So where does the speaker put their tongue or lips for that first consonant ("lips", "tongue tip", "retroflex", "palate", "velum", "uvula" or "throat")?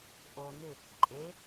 throat